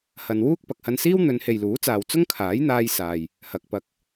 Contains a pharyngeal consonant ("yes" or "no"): no